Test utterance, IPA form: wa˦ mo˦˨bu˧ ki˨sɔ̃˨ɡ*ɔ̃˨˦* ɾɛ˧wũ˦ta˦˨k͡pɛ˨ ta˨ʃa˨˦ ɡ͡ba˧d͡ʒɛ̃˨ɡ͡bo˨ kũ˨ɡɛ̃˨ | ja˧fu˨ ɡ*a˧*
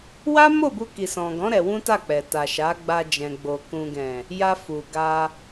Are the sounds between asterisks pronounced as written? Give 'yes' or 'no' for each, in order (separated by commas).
yes, yes